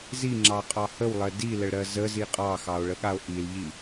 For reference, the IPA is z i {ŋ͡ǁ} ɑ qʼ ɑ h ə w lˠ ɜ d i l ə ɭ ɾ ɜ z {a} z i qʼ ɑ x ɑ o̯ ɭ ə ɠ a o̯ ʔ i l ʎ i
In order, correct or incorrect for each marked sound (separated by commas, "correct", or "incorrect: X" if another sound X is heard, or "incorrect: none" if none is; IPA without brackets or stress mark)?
correct, incorrect: ə